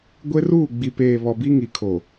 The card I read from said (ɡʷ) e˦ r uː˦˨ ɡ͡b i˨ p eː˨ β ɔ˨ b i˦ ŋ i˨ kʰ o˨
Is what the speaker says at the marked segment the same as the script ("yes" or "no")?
yes